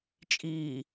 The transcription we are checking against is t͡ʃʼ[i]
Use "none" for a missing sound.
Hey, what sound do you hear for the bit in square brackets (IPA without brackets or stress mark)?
iː